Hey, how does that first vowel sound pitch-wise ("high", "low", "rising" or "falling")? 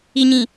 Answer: low